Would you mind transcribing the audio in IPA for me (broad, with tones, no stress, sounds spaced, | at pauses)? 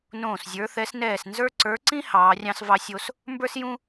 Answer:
n õː˧˩ s zʲ ə˞˨˦ θ ɛ˨˦ s n ɛː˧˩ s n z ə˞˦ ǀ ə˞˨˦ ǀ ĩ˦ h ɑː˨˦ rʲ ɑ̃˦ s v ɑ˦ sʲ o˦ s | m b ə˞˦ s j ũ˦